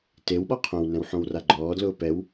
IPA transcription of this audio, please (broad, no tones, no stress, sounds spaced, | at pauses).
t e w ɓ ɔ qʰ õ w n ɛ̃ w ħ õ w r a ɡ͡ǃ ɔː d l ʊː p ɛ w